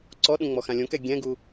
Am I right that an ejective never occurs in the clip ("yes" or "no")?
yes